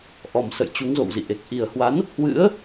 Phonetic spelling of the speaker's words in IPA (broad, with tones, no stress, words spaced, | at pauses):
ʔɔ˨˩msə̰˧˨j t͡ɕu˨˦ŋzo̰˧˨wzḭ˧˨ʔe˨˩k̚ ʔi˨˩ə̯hwa˨˦n | hwɨ̰˧˥ə̯